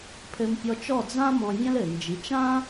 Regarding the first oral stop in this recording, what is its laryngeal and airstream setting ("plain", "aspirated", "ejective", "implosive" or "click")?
aspirated